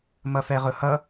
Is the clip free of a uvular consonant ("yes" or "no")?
no